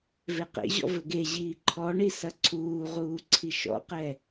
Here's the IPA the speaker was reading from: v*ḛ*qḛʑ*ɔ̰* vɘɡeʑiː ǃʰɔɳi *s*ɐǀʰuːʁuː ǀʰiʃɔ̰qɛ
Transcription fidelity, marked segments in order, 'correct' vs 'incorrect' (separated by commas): incorrect, correct, correct